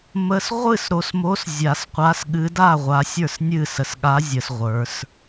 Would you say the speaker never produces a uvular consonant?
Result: no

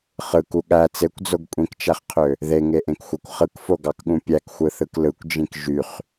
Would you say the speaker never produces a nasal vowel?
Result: no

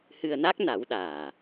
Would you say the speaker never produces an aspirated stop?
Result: yes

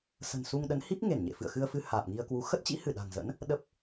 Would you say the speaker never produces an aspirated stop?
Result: yes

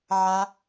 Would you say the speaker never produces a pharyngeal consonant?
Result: no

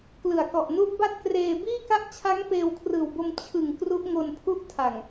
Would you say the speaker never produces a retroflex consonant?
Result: yes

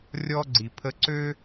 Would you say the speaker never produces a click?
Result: no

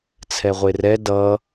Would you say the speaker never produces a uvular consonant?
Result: no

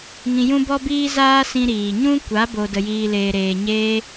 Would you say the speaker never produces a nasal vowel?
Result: no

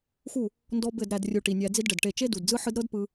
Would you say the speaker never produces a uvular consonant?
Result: yes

